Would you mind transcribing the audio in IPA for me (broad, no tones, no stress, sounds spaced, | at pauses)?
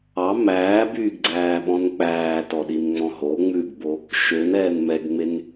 ɑ m æː b yː ɡ ɡ͡ǀ æː ɓ ɔ̃ n k͡p æː t ɔ ɗ i n ŋ͡m ɔ̃ ɦ o ŋ͡m ʉ ɡ b o | ʃ ø n ɛː n m ɛ ɡ ŋ͡m e n